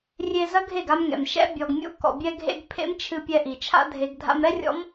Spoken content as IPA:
rʲ e˧ z ɐ˦ ɡʱ e˦˨ ɡ a˧ m ŋ ɛ̰˨ m ʃ ɛ̰˦ bʲ ɔ˨ ɡ mʲ ṵ˧ k ɔ̰˨ bʲ ɛ˧ ɡʱ ḛ˧ ɡ pʰ ḛ˦ m t͡ʃʰ ɨ˧ pʲ ɛ˧ ʔ i˨ t͡ʃʰ a̰˦ dʱ e˧ ɡ dʱ a̰˧ m ɾ ɛ˦ rʲ ɔ̰˦ m

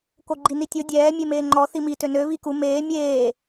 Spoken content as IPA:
k o ɡ͡ǃ i n i tʲ o dʲ ɛː mʲ e m eː ŋ͡ǃ ɔ θ i m i t ø n ø β i k u m eː mʲ eː

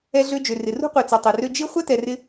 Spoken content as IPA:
ɛ˧ ɮ ø˧ d͡ʒ ø˩ r ɪ˩ r ṳ˥ qʷ e˩ t͡s ɛ˩ tˤ e˩ r ø˧ d͡ʒ i˥ χʷ ɛ˥ t ɛ˩ r ɪ˧

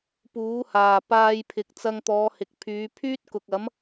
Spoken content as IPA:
p uː˨˥ h aː˨ p aː˧ j pʰ ɪ˨ k̚ t͡s ɐ˧ ŋ t̪ ɔː˨˧ h ɪ˨ k̚ pʰ yː˨˧ pʰ yː˥ t̚ k ʊ˨ k̚ ɐ˨˥ m

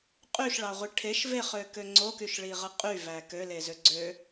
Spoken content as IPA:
qʼ y ʃ ɭ ɑ ʁʷ i ʈʰ e ʃ v e χ ø k ø ŋ͡ǀ o k y ʃ ɭ i ʁ ɯ qʼ y v æ k ø l e z ø ɡ͡ǀ ø

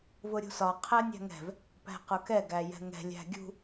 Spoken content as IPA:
v ʊ ɾʲ ṳ s ɒ qʰ æ nʲ æ̤ ŋ ɛ̤ v | p æ̤ q ʊ k ɛ ɡ æ j ɛ̤ ŋ ɛ̤ lʲ æ̤ ɡʲ ṳ

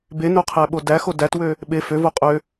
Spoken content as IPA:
b e n o qʰ æ ɓ o d æ x o d æ t w ø | ɓ e f ø v o qʼ ø

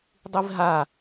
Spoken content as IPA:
dˤ i v ɦ a

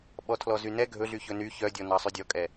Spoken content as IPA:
ɓ ɔ tʰ l ɔ z y n ɛ ɡʱ ɵ ɮ y ç ɵ n y ç œ dʲ ɔ n ɑ sˤ y dʲ ɔ kʼ ɛ

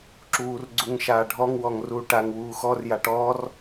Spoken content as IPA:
ǁ uː r ɡ͡ǀ u ŋ ʃ aː ɖʱ ɔ ŋ w ɔ ŋ r uː ʈ a ŋ w uː x ɔ r j a ʈ ɔ r

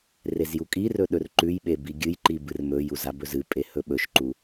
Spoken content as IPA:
r e z j u kʼ i r ɵ ɗ ɵ r ǃ ʉ j ɓ e b i ɡʲ ɨ j ǃ i b ɨ r m ɵ j u z a b ɵ z ɨ pʼ e h ɵ ɓ ɵ ʃ ǃ u

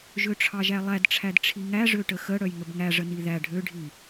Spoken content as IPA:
ʒ ø ʈ͡ʂʰ ɑ ʒ æ lˠ æ d ʈ͡ʂʰ æ d ʈ͡ʂʰ i ŋ æ ʐ ø ʈ ə x ə ɽ œ j ŋ ə b ŋ æ ʐ ə n i ð æ ɖʱ ø ɖʱ i

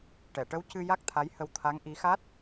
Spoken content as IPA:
ʈ ɛ˨˩˨ ʈ ə˧˥ w c ɨ˧ j a˦˥ k̚ t̪ʰ a˧˥ j h ə˧ w t̪ʰ a˧˥ ŋ ʔ i˧˥ x a˦˥ t̚

